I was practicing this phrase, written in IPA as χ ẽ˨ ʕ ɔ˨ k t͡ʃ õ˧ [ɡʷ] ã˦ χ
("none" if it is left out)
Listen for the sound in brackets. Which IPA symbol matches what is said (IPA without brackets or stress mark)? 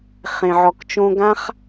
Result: ɡ